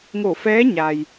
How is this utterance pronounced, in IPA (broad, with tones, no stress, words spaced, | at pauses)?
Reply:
ŋo˧˩fɛː˧˥ ɲa˩j